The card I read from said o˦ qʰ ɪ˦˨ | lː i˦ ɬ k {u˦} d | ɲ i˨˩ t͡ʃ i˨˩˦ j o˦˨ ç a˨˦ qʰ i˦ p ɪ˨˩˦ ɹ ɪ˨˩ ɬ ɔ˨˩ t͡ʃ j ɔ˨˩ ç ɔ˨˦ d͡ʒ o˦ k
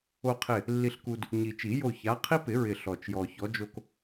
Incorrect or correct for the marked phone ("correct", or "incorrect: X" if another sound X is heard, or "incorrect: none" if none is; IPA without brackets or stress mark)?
correct